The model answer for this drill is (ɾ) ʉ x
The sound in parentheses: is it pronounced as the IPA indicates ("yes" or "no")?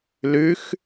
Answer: no